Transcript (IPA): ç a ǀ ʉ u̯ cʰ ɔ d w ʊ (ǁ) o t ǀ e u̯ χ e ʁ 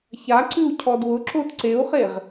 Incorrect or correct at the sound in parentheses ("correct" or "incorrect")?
correct